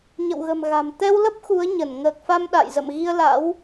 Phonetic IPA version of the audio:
ɲə̰˧˨wɣə̤˨˩mɣa̤˨˩m t̪ɛ˧wlə˦˥p̚ xu˨˦ə̯ɲə˧˩n ŋəː˨˩k̚fa˧m ɗa̰˧˨jzə̰˧˨m ɣi˧ə̯la̰˧˥w

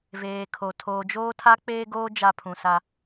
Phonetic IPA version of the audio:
veː˨kʰo˨ tʰoː˨d͡ʒoː˦tʰa˦ k͡peː˦ɡoː˦ d͡ʒa˦pʰũ˨sa˦

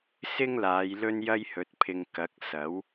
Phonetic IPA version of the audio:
sɪ˥ŋlaː˨˧j lɵ˥njɐ˥jhɵ˨˥t̚pʰɪ˧ŋ kɐ˨˥k̚ sɐ˨˥w

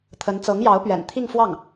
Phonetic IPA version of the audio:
t̪ʰə˧˥n t͡sɤ˧˥ŋjɑ˧˥ʊ̯pɥɛ̰˨˩n t̪ʰi˥˧ŋfwɑ˥˩ŋ

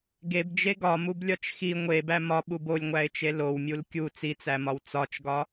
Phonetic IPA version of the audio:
ɡebd͡ʒe ɡɒmublʲɒt͡ʃ xi ŋʷebæ mɒɓub olʲŋʷæɪ̯t͡ʃe lowmʲul kʲu t͡sit͡sæmɒw t͡sɒt͡ʃɡɒ

